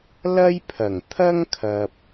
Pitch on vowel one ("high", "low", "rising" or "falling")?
high